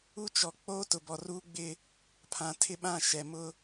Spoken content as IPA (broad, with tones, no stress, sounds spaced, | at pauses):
u˦ t͡ʃ ɔ˨ k͡p oː˦ t ʊ˨ b ɔ˨ r u˦ ɡ͡b ɪ˦ | pʰ ã˨ tʰ ɪ˦ ɓ ã˦˨ ʃ ɛ˨ m ʊ˦